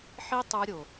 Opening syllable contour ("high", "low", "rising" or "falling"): high